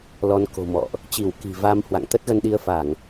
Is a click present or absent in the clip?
absent